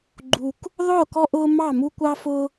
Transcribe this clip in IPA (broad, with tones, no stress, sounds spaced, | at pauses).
ɡ͡ǃ u˦ k | ðˤ ʊː˥˨ k ɔ˦ ʔ ʊː˦ m ɑ˥˨ m u˦ kʷ ɑ˦ f ʊ˦